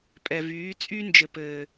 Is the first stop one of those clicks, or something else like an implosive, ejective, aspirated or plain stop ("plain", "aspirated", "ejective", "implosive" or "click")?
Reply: ejective